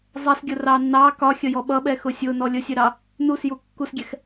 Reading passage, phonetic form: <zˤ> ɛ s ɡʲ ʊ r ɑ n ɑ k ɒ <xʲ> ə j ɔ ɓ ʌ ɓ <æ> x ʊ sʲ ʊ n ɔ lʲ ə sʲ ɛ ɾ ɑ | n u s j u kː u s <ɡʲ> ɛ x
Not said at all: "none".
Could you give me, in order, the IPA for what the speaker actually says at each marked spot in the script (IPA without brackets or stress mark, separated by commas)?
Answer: zˤ, xʲ, ɛ, ɡʲ